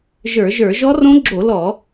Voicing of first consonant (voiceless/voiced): voiced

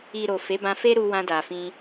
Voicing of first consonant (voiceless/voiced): voiced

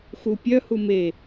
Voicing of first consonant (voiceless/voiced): voiceless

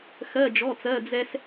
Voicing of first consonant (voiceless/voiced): voiceless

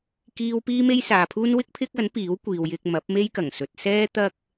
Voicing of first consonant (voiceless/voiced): voiceless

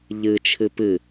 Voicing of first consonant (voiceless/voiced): voiced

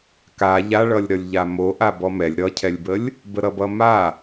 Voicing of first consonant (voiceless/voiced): voiceless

